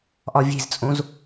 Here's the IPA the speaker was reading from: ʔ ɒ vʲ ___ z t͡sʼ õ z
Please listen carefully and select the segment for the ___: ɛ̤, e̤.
e̤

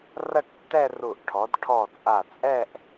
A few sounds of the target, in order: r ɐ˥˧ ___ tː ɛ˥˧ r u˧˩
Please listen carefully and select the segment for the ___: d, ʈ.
ʈ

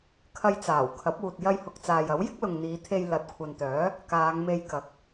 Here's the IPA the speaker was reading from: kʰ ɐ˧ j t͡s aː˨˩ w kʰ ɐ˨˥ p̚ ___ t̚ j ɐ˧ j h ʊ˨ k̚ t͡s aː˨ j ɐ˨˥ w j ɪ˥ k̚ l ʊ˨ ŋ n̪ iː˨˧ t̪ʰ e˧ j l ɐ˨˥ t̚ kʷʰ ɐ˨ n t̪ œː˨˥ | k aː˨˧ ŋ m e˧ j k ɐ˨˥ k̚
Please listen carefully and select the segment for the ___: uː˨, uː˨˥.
uː˨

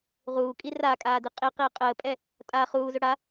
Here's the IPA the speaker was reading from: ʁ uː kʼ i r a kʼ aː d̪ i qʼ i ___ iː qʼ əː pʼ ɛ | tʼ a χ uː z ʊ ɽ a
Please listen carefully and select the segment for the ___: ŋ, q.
q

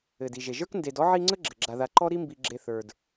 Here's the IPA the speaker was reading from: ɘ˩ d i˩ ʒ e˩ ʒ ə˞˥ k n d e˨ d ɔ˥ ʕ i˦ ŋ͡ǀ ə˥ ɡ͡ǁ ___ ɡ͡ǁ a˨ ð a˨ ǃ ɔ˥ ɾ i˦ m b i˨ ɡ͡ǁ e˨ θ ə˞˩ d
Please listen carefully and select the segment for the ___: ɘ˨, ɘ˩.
ɘ˩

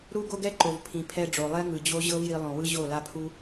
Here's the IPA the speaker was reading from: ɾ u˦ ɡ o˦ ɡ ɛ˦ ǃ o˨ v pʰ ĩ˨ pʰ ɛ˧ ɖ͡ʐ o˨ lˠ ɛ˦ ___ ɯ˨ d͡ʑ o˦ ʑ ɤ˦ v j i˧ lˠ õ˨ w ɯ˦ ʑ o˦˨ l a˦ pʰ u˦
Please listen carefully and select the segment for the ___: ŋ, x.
ŋ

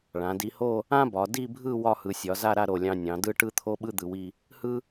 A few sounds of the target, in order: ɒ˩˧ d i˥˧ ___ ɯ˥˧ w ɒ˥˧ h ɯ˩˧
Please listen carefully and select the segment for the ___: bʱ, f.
bʱ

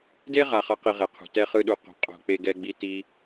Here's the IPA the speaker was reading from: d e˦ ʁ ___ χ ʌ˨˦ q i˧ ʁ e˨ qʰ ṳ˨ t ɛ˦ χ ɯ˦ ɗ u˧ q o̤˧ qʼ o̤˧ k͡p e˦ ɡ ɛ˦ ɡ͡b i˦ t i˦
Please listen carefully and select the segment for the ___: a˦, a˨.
a˨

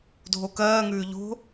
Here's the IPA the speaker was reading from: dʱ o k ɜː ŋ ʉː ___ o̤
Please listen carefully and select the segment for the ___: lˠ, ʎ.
ʎ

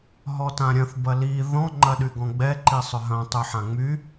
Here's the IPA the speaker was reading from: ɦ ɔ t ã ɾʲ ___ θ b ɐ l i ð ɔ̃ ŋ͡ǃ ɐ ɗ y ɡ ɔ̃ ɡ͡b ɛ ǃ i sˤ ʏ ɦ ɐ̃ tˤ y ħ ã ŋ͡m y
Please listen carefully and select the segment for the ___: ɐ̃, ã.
ɐ̃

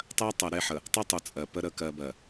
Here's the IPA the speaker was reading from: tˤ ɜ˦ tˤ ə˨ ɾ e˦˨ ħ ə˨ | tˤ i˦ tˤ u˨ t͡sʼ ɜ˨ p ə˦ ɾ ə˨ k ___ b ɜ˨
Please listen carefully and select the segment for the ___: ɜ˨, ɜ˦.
ɜ˨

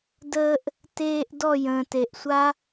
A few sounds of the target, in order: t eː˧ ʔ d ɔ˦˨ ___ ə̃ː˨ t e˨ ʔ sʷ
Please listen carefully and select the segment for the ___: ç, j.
j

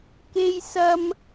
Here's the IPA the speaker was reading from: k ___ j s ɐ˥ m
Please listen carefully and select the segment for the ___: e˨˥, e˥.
e˥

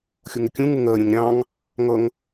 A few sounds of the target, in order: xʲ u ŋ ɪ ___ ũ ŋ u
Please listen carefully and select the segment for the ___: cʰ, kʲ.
kʲ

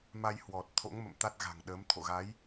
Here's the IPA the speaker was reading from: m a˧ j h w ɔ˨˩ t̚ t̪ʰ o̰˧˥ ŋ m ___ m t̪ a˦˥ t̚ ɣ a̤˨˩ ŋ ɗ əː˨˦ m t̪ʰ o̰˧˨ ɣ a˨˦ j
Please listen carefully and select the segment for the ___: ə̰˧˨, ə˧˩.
ə̰˧˨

